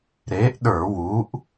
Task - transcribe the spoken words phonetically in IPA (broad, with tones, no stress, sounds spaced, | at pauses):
ɾ e˨˥ ʔ ɗ ə˞˧˩˧ w u˨˥ ʔ